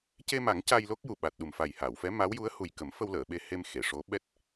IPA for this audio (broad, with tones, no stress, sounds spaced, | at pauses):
c e˧ m a˨˩˦ ŋ c a˧ j l o˦˥ k̚ j u˨˩ ɓ a˨˩ t̚ ɗ u˨˩ m f a˨˩ j h aː˨˩˨ w f ɛ˧˥ m a˧˥ w j u˧˥ ə̯ h u˨˩ j k ə˨˩˦ m f ə˧ w l əː˨˩˨ ɓ e˧ h e˧ m x e˨˩˨ ʂ o˧˥ ɓ ɛ˦˥ t̚